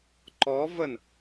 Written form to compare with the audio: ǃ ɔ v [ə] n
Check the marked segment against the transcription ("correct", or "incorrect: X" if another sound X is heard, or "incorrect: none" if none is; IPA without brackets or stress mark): correct